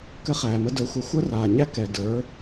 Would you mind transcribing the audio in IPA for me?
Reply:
k ɘ˧ χ æː˨ m ə˧ d ə˞˧ xʷ ə˦ xʷ əː˦ r aː˨ ɲ æ˦ k ɛ˨ d ə˞˨˦

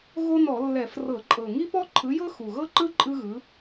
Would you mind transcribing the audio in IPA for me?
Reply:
ɣ o˥ n ɔ˧˩˧ lː ɛ˧˩˧ f r ɤ˧˩˧ ǃʼ ɤ˨˩ ŋ i˥ p ɔ˥ ǃʰ ɯ˨˥ j ɤ˥ x u˨˩ ɣ ɤ˥ ǃ ɯ˥ ǃʼ ɯ˥ ɣ ɯ˨˥

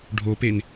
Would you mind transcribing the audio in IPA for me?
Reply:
ɖʱ o p e n

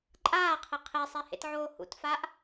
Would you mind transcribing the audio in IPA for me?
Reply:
ǃʼ aː qʰ e qʰ e sˤ e h ḛ t ʕ oː h ṵ t f a ʔ

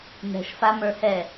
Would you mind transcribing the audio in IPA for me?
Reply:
n̪ ɛ̤ ʃ f a m ə˞ h ɛ

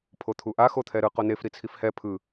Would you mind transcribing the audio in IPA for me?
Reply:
pʰ o t̪ʰ u ʔ a x o t̪ʰ ɛ ɾ ɯ q o n e f ɾ i t͡sʰ i f h ɛ pʰ ɯ

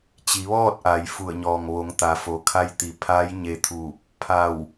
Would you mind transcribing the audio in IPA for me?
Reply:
t͡ɕ i˩˧ ʋ ɔː˥˨ t̚ ʔ a˩˧ j f u˧˩ ə̯ ɲ ɔː˩ ŋ ʋ o˩˧ ŋ t̪ a˩˧ f o˩ kʰ a˧ j t̪ i˩ pʰ a˧˥ j ɲ e˧ t̪ʰ uː˧˩ p̚ | pʰ a˧˩ w

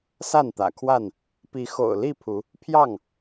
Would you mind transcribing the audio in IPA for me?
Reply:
s a˥˨ n t̪ ä̰˨˩ kʰ w a˥˨ n | p i˨˦ x o̰˨˩ ʊ̯ l i˥˨ pʰ u˨˦ | pʰ j ɑ˥˨ ŋ

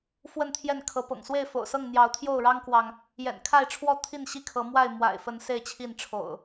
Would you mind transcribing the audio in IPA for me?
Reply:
f w ə˥˨ n t̪ʰ j ɛ˥˨ n kʰ ɤ˨˦ p ɤ̰˨˩ ŋ s w e˥˨ ɪ̯ f o̰˨˩ ʊ̯ s ɤ˥˨ ŋ n̪ j ɑ˨˦ ʊ̯ t̪ʰ j o˥˨ ʊ̯ ɻ ɑ˦ ŋ k w ɑ˨ ŋ | j ɛ̰˨˩ n kʰ a˥˨ ɪ̯ ʈ͡ʂʰ w ɔ˥˨ t̪ʰ i˥˨ n ɕ i˥˨ kʰ ɤ˨˦ m w a˥˨ ɪ̯ m w a̰˨˩ ɪ̯ f ə˨˦ n s e˥˨ ɪ̯ t͡ɕʰ i˥˨ n ʈ͡ʂʰ o̰˨˩ ʊ̯

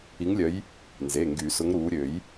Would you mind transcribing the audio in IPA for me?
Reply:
i˨˦ ŋ lʲ œ˨˦ j | n z e˩˧˩ ŋ ɡ y˨˩˦ s ʊ˨˦ ŋ ɾ uː˨˦ ɾʲ ø˨˩˦ j

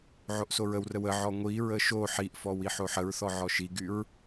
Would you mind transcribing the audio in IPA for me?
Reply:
ʕ o ʔ s o ɹ ə w r ə w ə ʕ ɔ ŋʷ i ɹ ə ʃ o ħ i ʔ f ɔ w i ħ o ħ ə ɹ θ ɔ ʕ ɔ ʃ i ɡ y ɹ

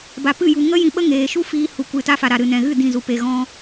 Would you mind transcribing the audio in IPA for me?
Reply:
b a˨ p ɨ˦˨ j u˨ ŋ ə˦ j ĩ˧ ɓ ə˦ ŋ eː˨ ʃ u˦ f iː˧ h u˨ kʷ ɨ˨ t a˧ f a˨ ɾ a˨ ɾ ɨ˨ n ɛ̃˨ ɣ ɨ˦˨ d ĩ˦˨ z u˧ p e˧ ɣ ɔ̃˦

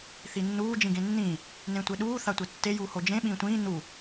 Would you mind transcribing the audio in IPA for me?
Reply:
θ i nː uː d͡ʒ ĩ ɡ ẽ nː ĩ | n ẽ tʷ e ɗ uː θ a tʷ e tː e j uː h o d͡ʒ ẽ ɓ ĩː tʷ ĩː n u

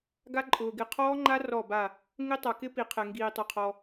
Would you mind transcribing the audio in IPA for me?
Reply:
ɡ a˦˥ ǃʼ ʊː˩ ɡ ɪ˧˩ qʰ ɔː˦˥ ŋ͡ǃ a˦˥ r ɔ˧˩ b a˧˩ | ŋ ɪ˦˥ tˤ a˩ k ɪ˦˥ p i˩ qʰ ɛ˩ ŋ ɡ iː˩ tˤ o˩ qʰ ɔ˩

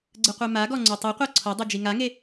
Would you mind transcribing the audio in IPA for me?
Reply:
ɡ͡ǀ ɯ qʷ e m a ɡ ɔ ŋ͡ǀ u tˤ ɛ qʷ ɤ ǀʰ o dˤ u d͡ʒ i ŋ a ŋ e

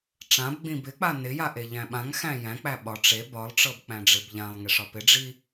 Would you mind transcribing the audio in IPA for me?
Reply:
ʈ͡ʂ ã b ɡ͡b ĩ b ɪ k͡p a n ɪ j a ʔ e ʎ æ̃ ɓ ã ŋ x æ̃ j æ̃ k͡p æ ɓ ɒ ʈ͡ʂ e b ɒ lˠ ʈ͡ʂ ɤ b k͡p æ̃ ɖ͡ʐ ɪ b ʎ ã lˠ ŋ e ʂ ɒ p ɪ ɖ͡ʐ i

